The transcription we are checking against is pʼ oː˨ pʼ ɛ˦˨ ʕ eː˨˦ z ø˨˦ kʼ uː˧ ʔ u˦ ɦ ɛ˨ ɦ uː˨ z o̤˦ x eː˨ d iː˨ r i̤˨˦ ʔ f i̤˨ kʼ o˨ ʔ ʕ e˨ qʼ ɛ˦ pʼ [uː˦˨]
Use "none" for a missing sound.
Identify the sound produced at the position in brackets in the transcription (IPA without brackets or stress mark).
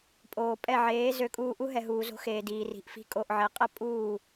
uː˦˨